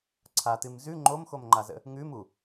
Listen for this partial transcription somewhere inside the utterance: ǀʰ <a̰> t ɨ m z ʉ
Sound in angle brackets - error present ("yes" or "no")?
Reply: yes